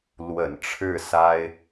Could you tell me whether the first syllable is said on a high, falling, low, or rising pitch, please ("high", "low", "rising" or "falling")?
low